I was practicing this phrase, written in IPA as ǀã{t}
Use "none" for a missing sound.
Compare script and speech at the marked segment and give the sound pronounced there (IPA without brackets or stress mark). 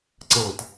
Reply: t